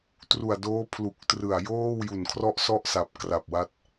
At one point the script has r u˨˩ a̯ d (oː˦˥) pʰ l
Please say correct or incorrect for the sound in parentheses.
correct